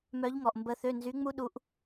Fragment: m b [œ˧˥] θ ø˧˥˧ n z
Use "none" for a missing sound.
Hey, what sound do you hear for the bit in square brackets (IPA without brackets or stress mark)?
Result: ə˧˥